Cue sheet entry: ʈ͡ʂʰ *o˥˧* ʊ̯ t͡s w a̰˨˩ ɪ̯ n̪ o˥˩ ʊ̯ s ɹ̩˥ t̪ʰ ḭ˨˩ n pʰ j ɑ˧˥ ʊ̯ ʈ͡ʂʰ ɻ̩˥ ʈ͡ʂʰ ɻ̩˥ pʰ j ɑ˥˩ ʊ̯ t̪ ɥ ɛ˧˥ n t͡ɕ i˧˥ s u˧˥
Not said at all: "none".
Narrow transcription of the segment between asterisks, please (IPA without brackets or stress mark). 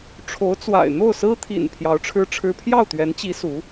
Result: o˧˥